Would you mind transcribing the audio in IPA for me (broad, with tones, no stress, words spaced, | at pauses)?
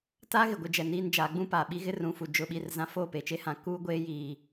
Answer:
ta˦ ɣɪ˨ ɡʷɪ˦d͡ʒɛ˨niː˦nd͡ʒaː˨˦ ɡ͡bũ˦paː˨ɓi˦ ɣɪ˦rũ˨fu˨ d͡ʒʊ˦˨ɓi˦˨rzã˦ foː˦˨pe˨t͡ʃe˦hã˨ kuː˦ɡʷeː˦jiː˨